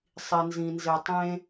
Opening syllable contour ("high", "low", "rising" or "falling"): low